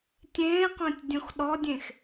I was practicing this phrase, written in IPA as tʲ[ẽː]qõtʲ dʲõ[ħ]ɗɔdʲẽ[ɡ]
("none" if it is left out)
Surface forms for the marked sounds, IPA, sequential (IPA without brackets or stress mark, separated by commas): ẽː, x, x